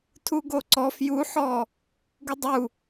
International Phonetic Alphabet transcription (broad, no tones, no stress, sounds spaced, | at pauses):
tʰ u ɡ o ǀ ɔ f j u ħ ɔ | ɡ u dˤ u